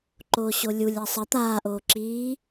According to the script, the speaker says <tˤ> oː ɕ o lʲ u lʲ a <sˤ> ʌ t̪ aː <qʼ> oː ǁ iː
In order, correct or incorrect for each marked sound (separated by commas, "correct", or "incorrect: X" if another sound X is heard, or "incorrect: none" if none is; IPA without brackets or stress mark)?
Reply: incorrect: ǃ, correct, incorrect: ʔ